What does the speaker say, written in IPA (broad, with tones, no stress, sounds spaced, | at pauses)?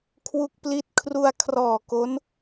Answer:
kʰ w u˦˥ k̚ p l i˦˥ t̚ kʰ r u˧ a̯ kʰ r ɔː˨˩ k o˦˥ n